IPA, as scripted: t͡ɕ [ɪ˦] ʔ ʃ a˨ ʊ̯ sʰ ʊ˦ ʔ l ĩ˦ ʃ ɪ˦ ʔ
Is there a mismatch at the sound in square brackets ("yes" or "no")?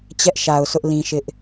yes